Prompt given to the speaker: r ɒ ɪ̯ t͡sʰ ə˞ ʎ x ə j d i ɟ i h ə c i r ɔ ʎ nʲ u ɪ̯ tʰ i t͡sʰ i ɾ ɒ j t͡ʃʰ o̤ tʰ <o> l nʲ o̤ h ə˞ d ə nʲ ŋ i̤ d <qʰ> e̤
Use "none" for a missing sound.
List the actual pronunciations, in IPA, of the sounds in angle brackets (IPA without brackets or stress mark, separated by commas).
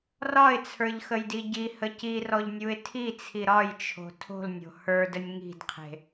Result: o̤, qʰ